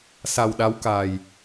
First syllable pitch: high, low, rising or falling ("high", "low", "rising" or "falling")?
low